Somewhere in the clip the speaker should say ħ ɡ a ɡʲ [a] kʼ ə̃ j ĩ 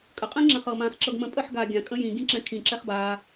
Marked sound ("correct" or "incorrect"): incorrect